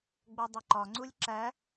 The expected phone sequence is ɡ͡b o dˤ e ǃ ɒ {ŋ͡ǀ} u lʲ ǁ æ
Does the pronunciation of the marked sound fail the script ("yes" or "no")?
no